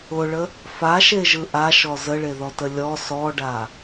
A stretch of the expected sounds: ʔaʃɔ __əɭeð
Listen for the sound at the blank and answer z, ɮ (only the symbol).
z